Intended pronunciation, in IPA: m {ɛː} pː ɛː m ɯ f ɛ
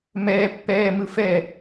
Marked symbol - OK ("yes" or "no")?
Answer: yes